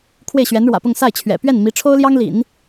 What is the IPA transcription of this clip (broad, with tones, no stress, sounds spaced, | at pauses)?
kʰ w e˥˩ ɪ̯ ɕ ɥ ɛ˧˥ n ɻ w ä̰˨˩ p ʊ˥˧ ŋ s a˥˩ ɪ̯ t͡ɕʰ ɥ ɛ̰˨˩ p ɥ ɛ˥˩ n m i˧˥ ʈ͡ʂʰ o˥ ʊ̯ l j ɑ˥ ŋ l ḭ˨˩˦ n